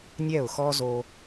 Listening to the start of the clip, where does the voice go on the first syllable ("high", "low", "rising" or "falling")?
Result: falling